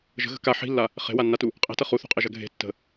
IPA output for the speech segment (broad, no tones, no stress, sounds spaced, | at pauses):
ʒ ə̤ ɣ ə̤ k a ħ i̤ lː a | χ e̤ w a nː a t u | qʼ e̤ t ɐ χ u θ ṳ qʼ e ʒ ɐ ɡʱ e̤ tː ə̤